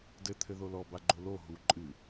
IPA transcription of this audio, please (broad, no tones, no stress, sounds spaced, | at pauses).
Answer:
d ɘ t̪ʰ ɘ ð o l ɔ b a ɡ͡ǃ o l o ɦ u ǃʼ ɨ